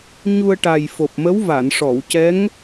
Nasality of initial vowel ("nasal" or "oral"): oral